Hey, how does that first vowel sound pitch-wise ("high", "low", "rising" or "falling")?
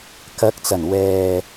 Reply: rising